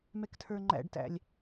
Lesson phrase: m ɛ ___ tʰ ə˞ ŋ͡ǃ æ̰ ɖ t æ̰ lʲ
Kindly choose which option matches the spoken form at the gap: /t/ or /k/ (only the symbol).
k